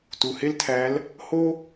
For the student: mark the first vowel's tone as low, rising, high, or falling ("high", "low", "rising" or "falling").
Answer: low